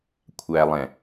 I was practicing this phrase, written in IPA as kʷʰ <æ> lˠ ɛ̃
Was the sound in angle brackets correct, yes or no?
yes